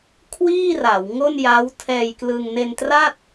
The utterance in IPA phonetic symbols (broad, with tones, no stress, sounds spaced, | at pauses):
kʰ w iː˥˩ r a˩˦ w ŋ o˥˩ n j a˦˥ w tʰ ɛː˧ j k l ɯ˧ ŋ n e˧ n t r a˥˩ t̚